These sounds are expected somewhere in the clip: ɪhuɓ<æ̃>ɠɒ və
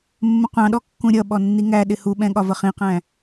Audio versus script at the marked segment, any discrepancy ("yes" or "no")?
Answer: yes